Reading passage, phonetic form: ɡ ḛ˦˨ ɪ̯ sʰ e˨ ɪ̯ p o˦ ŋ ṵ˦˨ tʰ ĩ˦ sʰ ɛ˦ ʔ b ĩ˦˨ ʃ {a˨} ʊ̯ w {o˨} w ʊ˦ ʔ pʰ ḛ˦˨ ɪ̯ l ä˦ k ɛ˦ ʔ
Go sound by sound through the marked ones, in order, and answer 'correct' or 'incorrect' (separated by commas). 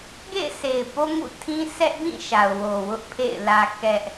correct, correct